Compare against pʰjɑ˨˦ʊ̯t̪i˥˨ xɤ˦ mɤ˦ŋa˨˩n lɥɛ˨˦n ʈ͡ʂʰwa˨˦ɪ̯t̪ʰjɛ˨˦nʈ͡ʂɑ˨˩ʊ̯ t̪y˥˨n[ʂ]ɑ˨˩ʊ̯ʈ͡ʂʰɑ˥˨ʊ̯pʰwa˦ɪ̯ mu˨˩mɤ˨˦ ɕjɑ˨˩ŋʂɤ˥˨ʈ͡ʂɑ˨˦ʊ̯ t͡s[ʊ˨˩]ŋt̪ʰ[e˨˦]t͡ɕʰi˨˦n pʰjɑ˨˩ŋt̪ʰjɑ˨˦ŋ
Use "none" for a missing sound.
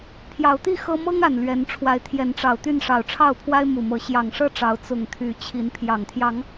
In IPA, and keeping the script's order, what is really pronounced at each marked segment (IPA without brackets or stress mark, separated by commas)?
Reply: ʂ, ʊ˨˩, y˨˦